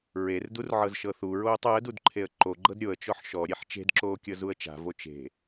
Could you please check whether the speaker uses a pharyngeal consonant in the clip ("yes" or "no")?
yes